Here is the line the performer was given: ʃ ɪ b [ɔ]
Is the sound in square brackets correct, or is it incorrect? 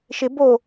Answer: incorrect